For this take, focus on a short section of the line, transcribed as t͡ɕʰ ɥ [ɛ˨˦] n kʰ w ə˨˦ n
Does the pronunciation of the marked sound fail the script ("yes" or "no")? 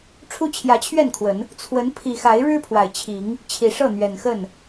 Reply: yes